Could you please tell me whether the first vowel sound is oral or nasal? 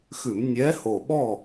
oral